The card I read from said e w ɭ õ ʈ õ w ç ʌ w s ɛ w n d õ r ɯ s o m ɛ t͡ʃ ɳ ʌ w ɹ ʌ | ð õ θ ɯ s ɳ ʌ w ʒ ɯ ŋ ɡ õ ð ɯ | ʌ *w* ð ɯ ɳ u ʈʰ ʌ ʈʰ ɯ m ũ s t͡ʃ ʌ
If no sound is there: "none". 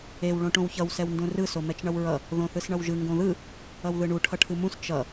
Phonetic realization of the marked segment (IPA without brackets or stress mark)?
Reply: w